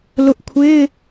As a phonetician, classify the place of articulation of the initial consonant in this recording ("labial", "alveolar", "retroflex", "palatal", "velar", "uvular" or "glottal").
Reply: alveolar